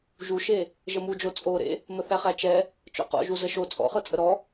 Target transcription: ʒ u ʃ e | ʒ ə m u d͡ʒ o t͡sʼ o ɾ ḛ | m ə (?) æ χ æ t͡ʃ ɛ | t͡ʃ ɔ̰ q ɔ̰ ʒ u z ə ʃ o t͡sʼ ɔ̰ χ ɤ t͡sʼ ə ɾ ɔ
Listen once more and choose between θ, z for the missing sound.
θ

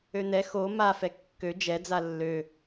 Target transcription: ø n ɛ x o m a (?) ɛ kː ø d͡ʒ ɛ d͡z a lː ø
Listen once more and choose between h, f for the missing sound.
f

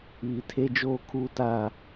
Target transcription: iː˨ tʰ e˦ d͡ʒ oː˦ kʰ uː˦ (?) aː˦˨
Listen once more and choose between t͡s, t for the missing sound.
t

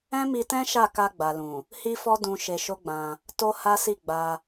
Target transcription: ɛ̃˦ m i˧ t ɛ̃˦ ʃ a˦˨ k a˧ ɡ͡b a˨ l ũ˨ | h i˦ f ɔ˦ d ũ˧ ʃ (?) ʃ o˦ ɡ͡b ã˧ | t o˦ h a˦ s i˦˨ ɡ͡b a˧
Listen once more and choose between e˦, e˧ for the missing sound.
e˧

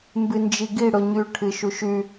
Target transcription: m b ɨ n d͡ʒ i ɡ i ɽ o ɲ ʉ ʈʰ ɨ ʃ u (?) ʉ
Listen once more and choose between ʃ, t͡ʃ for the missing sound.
ʃ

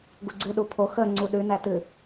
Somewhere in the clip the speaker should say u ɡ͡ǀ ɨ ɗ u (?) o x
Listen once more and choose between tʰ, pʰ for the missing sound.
pʰ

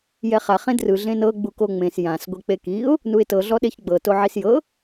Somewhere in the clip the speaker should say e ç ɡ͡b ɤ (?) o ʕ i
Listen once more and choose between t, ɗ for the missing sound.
t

